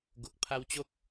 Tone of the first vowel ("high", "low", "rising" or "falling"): low